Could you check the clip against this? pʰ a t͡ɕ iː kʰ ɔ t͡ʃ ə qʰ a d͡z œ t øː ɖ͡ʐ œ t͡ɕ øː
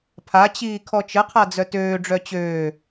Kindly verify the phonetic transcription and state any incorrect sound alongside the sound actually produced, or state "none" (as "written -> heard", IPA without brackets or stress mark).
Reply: none